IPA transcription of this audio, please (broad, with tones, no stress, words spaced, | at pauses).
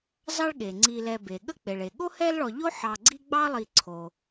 zɑ˦ɭɠe˩ŋ͡ǀi˨lɛ˨ be˩ɠə˦ k͡pe˩ɭe˩ ɠo˥hɛ˦lɭɔ˨ ʎo˥ħɑ˨ɡ͡ǀi˦ ɡ͡bɑ˥lˠi˨ǀʰo˩